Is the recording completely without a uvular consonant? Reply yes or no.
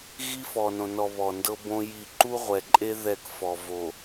no